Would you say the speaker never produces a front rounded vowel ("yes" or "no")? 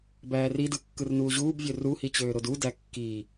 no